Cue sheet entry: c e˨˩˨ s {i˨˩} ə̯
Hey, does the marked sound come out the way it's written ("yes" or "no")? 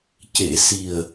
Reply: yes